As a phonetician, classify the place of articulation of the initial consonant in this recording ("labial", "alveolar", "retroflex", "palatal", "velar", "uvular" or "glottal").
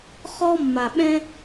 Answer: uvular